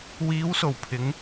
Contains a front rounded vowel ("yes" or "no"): no